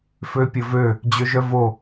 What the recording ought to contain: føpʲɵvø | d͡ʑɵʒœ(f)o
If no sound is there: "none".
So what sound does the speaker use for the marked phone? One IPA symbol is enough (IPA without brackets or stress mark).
v